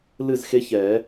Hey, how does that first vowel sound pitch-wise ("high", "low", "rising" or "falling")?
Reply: falling